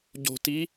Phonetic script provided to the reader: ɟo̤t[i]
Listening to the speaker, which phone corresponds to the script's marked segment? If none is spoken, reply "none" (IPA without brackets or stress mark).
i